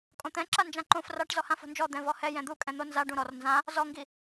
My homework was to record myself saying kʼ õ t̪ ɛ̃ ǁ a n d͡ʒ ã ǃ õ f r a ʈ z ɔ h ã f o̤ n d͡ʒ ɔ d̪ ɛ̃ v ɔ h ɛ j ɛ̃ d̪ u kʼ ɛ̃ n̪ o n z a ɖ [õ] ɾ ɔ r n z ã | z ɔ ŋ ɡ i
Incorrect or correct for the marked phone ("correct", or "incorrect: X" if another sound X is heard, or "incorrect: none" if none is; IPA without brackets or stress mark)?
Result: incorrect: ũ